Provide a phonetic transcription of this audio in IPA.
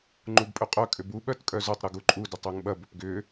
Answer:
ŋ͡ǃubpʼøqʼœ kʼʏbu ɓœtkʼœzʊtˤ ɾʊɡuǃʼu dʏtˤøŋɓɐ bʏpɡʏ

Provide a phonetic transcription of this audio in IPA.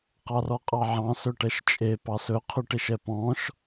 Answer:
qɑrɔqʼɑʕɑ̃ sɵʈɛʃt͡ʃʼe pɑsɵ qʰʉʈeʃɛpɔ̃ʃ

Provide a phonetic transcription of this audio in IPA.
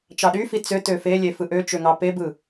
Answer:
t͡ʃɑɗyfi t͡sø tøfelʲe fɯʔøt͡ʃø ŋɑpebɯ

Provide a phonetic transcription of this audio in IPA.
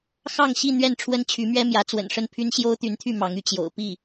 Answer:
xɑ˥˧ŋɕi˥˧ n̪ɥɛ˥˩n ʈ͡ʂʰwə˥nt͡ɕʰy˧˥mɥɛ˥mjä˧˥ t͡swə̰˨˩nʂə˥˩npʰy˥n ɕjo˥ʊ̯t̪y˧˥nt̪ʰy˥˩ mɑ˧˥ŋy˥˩ t͡ɕjo̰˨˩ʊ̯ pi˥˩

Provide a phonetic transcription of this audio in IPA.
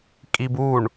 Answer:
kʼibuɳ

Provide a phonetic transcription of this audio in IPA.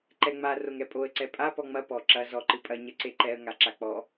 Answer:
ǃɛŋ͡ma roŋɛpʼoə̯ ǀɛpʼa pɔŋ͡mɐ pɔ ǁɐ zɔ ǃɨpʼɐ ɲɐǀeǃɛə̯ ŋaǁak͡pɔ

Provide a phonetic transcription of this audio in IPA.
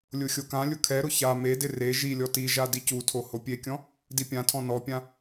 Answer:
lʲʊxʲokãlʲʊ kʰɛɾʊ ça medɪ re ʒilʲɔ tiʒa dicutʰo hopʲekʲɔ̃ | dipʲãtʰɔ̃ nɔpʲã

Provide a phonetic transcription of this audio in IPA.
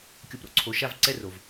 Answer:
kʲo˨pɾo̰˦ǀʰo˨ ʃa˦vǀɛ˦ro˨v

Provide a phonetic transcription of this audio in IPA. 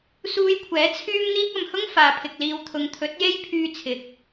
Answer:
suː˧jkʷʰɛː˨˥ t͡sʰyː˥mn̪iː˥k̚ ɐ˨mhʊ˥ŋ faː˨pʰɪ˨k̚ liː˨wt̪ʰʊ˨ŋt̪ʰɵ˨˥t̚je˥j pʰyː˧t͡sʰɪ˨k̚

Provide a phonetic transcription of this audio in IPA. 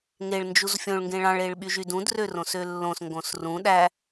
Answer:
ŋeɭ nd͡ʒuzfʲõɭ ŋɡẽɭɑ̃ɭ eɭɓyʒydũd rørõsølːõs ŋɡõsrũ ɗæ

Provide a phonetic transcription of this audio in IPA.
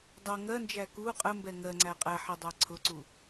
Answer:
dˤɜ ŋɜnd͡ʒæ ku qʼəmbɛ ŋɜŋ͡ǀæ qʼæħidˤæ ǀʰʊǀu

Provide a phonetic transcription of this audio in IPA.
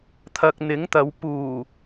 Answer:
t̪ʰɐ˨k̚n̪ɪ˨˥ŋt̪ɐ˨˧w puː˨˩

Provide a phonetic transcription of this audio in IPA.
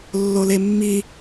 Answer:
lːolemːi

